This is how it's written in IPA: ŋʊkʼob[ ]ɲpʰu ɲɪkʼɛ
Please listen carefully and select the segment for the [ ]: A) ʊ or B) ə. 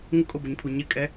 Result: A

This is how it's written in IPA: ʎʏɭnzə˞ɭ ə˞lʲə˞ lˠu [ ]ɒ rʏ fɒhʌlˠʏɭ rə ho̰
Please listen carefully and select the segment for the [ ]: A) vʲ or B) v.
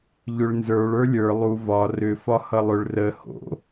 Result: B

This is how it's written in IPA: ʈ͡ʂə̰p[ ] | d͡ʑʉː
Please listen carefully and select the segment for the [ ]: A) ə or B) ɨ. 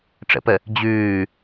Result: A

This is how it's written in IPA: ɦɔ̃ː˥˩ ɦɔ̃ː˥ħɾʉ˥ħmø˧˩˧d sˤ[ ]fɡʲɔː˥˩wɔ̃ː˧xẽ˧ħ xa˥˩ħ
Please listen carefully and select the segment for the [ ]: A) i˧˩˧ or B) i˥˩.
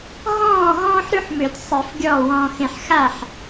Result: A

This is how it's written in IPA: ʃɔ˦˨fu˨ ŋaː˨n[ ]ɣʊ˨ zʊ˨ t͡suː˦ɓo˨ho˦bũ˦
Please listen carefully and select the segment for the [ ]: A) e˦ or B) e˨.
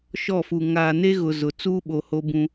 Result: A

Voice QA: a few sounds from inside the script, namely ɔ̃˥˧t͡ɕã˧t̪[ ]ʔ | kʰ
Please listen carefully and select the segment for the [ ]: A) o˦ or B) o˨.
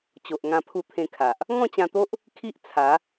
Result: A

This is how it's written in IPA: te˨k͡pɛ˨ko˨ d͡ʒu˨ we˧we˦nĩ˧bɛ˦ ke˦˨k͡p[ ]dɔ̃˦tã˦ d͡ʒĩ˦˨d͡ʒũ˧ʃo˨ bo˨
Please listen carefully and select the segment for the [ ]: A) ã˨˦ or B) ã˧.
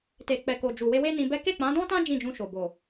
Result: A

